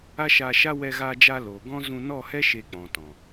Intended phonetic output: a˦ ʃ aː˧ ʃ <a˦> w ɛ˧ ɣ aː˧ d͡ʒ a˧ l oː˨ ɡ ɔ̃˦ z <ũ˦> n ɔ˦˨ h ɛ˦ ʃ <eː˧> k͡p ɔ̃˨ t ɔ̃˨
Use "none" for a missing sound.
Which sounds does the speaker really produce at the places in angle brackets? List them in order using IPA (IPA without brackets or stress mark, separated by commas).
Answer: a˦, ũ˧, e˧